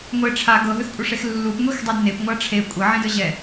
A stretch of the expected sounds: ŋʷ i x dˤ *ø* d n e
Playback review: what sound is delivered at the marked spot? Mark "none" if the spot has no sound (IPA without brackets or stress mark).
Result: u